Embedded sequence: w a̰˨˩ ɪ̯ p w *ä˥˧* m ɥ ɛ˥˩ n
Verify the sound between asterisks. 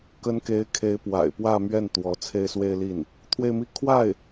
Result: correct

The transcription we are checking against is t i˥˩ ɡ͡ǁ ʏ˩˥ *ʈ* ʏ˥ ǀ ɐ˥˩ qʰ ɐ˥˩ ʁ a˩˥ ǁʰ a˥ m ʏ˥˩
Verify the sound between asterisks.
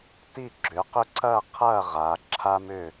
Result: incorrect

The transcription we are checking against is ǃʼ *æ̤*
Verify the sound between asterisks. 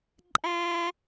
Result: incorrect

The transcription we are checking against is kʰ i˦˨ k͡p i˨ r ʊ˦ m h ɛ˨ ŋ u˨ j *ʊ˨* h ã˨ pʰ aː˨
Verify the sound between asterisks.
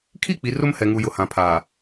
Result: correct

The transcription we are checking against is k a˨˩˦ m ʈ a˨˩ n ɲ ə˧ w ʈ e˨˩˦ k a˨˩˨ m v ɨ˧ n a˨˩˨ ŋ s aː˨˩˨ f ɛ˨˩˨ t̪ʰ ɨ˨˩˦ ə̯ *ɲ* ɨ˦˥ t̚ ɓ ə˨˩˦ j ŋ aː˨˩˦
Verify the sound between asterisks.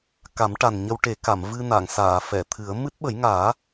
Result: incorrect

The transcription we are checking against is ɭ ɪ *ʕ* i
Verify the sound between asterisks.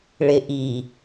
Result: incorrect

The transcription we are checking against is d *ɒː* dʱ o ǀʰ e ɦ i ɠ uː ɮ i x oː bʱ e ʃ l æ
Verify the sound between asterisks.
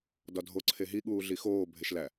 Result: incorrect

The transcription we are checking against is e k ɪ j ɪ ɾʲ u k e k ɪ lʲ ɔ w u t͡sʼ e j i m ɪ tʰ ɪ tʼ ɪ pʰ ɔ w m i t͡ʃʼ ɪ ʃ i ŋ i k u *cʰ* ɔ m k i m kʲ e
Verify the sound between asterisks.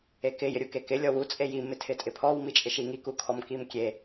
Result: incorrect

